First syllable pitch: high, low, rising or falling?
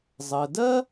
low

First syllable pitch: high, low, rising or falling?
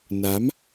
rising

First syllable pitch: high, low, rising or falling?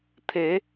rising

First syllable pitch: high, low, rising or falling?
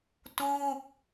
falling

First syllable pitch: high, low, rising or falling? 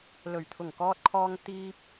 low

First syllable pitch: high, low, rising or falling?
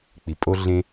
low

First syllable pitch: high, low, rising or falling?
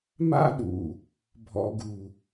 high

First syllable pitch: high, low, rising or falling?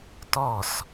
falling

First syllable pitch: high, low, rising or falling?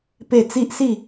falling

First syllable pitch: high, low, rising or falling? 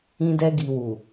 low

